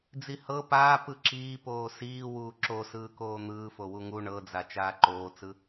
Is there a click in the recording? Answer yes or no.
yes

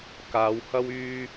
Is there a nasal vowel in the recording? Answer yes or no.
no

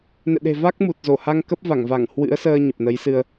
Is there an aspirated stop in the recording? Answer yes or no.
no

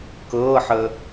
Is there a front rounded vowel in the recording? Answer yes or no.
no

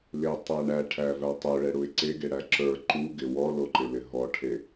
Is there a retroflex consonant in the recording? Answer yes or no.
yes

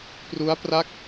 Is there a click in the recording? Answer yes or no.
no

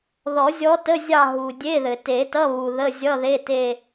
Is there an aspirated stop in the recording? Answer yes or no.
no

